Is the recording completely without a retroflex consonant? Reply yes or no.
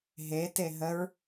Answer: yes